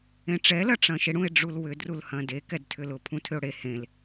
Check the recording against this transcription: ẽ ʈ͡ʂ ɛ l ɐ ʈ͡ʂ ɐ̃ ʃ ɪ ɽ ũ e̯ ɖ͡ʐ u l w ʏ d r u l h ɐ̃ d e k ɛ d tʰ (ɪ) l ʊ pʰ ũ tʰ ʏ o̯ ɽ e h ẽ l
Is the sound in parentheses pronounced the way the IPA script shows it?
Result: no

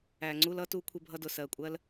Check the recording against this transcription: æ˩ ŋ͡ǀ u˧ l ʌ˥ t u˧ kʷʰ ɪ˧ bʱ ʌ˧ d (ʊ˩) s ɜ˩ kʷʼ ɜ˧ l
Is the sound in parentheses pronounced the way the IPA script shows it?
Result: yes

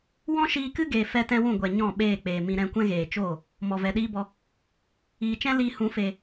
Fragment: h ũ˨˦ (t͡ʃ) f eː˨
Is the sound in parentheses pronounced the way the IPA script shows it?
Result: no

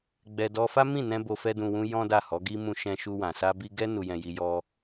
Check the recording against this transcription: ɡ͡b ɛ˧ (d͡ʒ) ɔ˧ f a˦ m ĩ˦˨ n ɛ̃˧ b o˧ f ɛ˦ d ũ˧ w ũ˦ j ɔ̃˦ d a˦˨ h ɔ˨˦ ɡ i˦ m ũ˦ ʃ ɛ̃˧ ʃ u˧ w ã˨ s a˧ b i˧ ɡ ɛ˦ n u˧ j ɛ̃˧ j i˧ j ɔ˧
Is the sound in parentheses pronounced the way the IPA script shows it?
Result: no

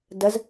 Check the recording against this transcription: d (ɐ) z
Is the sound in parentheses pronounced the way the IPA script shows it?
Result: yes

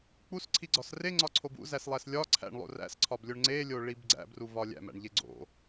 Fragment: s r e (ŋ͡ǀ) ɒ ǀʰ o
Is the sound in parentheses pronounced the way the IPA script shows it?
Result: yes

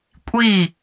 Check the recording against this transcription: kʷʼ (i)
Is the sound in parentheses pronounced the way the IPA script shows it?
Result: yes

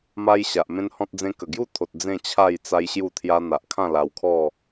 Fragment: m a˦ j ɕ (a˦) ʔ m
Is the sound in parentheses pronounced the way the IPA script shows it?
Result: no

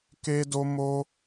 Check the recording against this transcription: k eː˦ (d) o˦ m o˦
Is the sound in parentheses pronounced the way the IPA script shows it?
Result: yes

